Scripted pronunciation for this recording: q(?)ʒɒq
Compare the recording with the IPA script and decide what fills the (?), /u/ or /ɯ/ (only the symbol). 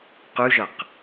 u